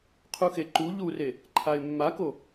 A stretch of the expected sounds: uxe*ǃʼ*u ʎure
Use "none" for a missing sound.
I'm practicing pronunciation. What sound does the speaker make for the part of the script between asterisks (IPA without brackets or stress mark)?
ǃ